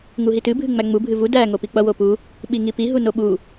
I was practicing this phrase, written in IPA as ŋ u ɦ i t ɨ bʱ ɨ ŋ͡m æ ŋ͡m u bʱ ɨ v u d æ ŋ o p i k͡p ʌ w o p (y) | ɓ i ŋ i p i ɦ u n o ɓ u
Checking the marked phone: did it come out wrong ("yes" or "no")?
yes